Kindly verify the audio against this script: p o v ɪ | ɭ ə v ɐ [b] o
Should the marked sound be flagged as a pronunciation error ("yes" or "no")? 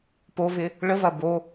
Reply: no